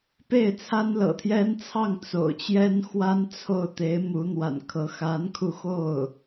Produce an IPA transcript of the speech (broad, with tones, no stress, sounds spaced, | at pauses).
p e˥˩ ɪ̯ t͡sʰ a˥ n l ɤ̰˨˩ t̪ʰ j ɛ˥ n t͡sʰ ɑ˥˩ ŋ t͡s o̰˨˩ ʊ̯ t͡ɕ j ɛ˥ n x w a˥ n t͡sʰ o˥˩ ʊ̯ t̪ e˧˥ ɪ̯ m u˧˥ n̪ w a̰˨˩ n kʰ ɤ˧˥ x a˧˥ n kʰ u˧ x o˥˩ ʊ̯